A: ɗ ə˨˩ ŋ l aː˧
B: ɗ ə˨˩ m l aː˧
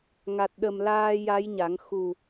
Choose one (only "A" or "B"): B